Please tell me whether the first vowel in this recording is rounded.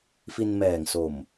no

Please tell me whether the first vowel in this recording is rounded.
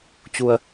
yes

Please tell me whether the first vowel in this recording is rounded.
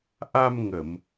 no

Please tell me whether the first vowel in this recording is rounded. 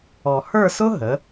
yes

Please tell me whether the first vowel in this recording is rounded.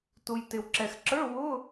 yes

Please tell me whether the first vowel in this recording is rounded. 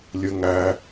no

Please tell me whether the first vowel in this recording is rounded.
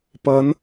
no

